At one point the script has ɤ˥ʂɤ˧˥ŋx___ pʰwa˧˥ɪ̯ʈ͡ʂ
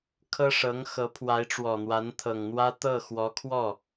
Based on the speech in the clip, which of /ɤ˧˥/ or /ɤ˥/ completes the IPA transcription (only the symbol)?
ɤ˧˥